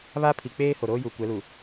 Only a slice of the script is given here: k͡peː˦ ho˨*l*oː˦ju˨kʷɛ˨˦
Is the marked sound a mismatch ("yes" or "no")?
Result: yes